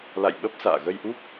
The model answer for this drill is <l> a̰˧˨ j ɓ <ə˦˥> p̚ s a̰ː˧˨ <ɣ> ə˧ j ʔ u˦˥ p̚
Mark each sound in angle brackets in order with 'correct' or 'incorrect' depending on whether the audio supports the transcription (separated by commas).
correct, correct, correct